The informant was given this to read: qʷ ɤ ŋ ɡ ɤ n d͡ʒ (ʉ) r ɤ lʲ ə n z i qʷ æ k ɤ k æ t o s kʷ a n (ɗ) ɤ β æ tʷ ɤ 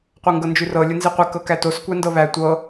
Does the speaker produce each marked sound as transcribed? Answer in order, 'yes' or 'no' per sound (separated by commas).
yes, no